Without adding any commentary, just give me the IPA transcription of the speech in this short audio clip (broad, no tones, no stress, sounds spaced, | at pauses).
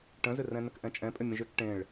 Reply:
ʈ ə̃ z ʏ r ɛ̃ n ə k ʔ ɛ̃ t͡ʃʼ ɛ̃ pʼ ʏ mʲ ə̃ ʒ ʏ k ʈ ẽ ɭ